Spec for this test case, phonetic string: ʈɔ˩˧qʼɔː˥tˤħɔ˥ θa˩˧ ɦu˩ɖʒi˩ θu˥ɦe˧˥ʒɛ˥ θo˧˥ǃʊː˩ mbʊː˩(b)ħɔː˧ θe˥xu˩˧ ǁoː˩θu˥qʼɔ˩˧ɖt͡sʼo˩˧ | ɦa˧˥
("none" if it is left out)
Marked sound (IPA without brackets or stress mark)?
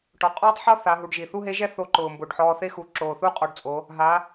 ɖ